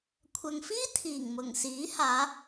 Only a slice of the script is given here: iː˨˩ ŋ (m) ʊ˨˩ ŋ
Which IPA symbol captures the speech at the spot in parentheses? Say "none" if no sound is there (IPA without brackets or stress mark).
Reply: m